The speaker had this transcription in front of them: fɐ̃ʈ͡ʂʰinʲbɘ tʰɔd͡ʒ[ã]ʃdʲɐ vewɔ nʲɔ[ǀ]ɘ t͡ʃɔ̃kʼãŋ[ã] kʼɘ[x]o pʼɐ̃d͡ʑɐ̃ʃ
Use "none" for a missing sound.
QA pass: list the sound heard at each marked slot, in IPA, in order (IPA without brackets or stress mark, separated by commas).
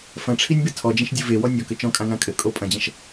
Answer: ɐ̃, k, ã, kʼ